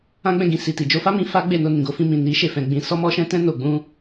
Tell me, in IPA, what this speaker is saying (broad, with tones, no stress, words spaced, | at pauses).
ã˦ɡ͡bɛ̃˦˨ɡĩ˧ si˨ti˨ d͡ʒo˧fa˦mĩ˧ fa˦ɡ͡be˦˨no˧nĩ˨ ɡo˧fĩ˧mĩ˨ ni˨˦ ʃe˦˨fɛ̃˨˦ɡ͡bĩ˧ sɔ˧mɔ˧ʃɛ̃˧tɛ̃˧ no˨ɡ͡bũ˧